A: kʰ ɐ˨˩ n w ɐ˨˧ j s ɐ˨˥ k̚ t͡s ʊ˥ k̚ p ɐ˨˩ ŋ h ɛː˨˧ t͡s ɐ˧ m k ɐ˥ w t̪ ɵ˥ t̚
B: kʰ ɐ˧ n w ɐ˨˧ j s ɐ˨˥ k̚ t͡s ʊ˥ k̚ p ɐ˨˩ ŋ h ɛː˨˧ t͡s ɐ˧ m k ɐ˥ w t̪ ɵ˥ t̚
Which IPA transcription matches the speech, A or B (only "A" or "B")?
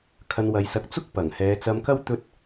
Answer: B